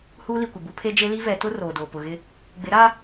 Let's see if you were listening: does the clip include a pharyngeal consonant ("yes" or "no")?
no